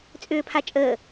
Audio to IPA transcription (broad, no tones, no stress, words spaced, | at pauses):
t͡sʼʏːpʰat͡ʃʼəː